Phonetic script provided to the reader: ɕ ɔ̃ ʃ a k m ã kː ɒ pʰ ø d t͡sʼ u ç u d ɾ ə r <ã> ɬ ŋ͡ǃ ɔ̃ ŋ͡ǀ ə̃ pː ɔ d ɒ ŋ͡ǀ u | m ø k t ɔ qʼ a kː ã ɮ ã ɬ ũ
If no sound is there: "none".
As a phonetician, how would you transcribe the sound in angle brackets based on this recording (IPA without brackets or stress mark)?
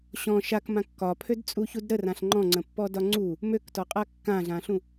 ã